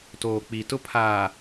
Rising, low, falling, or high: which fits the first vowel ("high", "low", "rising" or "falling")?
low